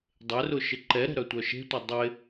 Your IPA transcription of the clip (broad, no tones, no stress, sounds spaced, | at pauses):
dˤ e r ʊ ʃ ɪ ǃ ɛ ɾ ɛ̤ ɾ œ tʷ œ ʃ e̤ tʷ ɛ dˤ ɪ